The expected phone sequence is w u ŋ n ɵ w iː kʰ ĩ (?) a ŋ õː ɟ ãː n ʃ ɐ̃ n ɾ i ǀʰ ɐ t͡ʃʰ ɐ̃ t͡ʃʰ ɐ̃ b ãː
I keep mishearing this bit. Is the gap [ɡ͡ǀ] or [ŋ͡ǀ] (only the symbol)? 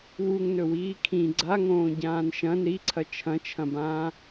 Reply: ɡ͡ǀ